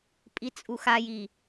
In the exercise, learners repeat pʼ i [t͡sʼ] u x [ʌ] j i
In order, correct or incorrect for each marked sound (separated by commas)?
correct, incorrect